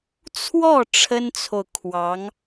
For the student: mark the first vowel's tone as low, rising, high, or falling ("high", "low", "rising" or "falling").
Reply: falling